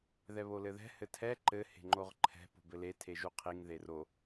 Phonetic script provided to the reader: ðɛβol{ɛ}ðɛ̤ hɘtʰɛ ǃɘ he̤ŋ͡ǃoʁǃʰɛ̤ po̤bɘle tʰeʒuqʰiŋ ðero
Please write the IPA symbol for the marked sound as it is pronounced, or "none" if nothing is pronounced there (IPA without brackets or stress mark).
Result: ɘ